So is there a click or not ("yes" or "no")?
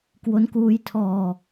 no